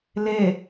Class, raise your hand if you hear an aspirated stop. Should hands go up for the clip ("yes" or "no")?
no